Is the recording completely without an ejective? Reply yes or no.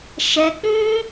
yes